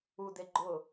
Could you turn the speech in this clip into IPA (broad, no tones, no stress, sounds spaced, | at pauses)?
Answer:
u d e ɡ͡ǃ ʊ